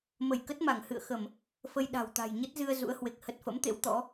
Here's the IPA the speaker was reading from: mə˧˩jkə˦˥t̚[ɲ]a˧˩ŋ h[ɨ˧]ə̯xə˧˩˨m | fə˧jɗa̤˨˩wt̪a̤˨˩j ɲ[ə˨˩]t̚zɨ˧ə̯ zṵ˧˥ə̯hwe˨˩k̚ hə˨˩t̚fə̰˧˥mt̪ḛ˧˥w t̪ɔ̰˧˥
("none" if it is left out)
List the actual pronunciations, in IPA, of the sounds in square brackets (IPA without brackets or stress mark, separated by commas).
m, ɨ̰˧˨, ə˦˥